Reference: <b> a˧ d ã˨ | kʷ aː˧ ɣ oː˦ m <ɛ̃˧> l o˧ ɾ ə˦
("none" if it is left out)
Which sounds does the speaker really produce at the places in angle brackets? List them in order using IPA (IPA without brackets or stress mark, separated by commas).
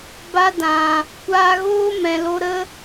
b, ɛ̃˨